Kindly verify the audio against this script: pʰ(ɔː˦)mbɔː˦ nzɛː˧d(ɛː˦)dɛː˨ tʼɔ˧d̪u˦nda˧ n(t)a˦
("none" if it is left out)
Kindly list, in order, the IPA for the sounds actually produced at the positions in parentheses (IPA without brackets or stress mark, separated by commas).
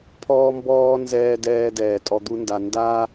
ɔː˦, ɛː˧, d